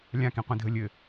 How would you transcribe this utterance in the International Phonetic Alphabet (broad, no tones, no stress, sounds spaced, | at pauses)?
lʲ ã k ĩ qʷ ĩ dʱ ə lʲ ɘ